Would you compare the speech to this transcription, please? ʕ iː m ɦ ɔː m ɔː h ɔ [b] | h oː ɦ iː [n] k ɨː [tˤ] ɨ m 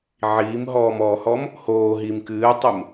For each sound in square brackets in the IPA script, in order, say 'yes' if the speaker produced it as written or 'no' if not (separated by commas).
no, no, yes